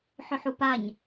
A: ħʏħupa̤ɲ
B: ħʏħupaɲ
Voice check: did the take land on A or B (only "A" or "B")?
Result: B